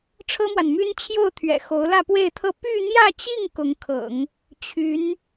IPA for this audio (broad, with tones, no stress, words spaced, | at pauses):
ʈ͡ʂʰɤ˥mwa˨nmy˥n t͡ɕʰjo˥˩ʊ̯t̪ʰɥɛ̰˨˩ xo˧˥ʊ̯lä˥˧pwe˥˧ɪ̯t̪ʰɤ˥˧ py˥˧n̪jä˥˧t͡ɕi˥˩ŋ kʊ˧˥ŋkʰɤ̰˨˩˦ŋ | t͡ɕʰy˧˥n